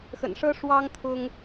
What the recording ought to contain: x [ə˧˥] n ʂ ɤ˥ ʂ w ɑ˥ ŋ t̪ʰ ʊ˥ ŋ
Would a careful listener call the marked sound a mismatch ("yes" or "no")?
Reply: yes